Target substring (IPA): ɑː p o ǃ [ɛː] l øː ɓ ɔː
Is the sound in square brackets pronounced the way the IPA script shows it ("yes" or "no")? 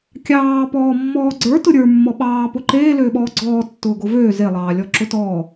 no